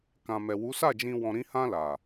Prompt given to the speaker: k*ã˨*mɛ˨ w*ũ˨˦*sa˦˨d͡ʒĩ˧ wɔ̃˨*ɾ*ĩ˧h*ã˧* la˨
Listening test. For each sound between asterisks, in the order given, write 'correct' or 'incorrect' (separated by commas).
correct, incorrect, correct, correct